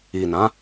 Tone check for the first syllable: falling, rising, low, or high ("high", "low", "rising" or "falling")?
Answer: low